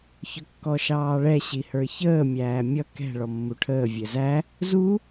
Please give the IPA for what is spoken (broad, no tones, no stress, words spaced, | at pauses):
çʊkːɔʃɑːɭɛ ɕihə˞çəː mʲæːmʲʌ kɛ̤ ɭɔmːuʈʰəː vʲɛzæ | zu